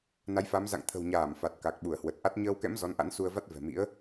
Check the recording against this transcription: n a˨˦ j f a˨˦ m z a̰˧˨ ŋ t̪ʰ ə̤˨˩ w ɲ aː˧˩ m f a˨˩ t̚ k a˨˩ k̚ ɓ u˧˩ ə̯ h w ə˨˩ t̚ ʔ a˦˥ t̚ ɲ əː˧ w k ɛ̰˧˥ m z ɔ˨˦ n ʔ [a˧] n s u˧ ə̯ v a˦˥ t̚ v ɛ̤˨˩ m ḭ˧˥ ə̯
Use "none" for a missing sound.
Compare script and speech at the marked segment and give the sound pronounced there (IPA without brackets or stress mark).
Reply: a̰˧˥